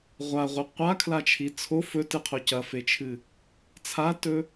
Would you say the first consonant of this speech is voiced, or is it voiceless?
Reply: voiced